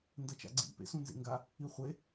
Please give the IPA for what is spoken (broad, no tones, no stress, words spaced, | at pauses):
ndɐt͡ʃa̰ɡ͡ǀḭ pḛsũnzḛŋɡa | iχʷe